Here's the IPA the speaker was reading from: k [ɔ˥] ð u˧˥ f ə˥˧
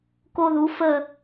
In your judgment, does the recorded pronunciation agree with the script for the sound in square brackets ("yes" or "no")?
no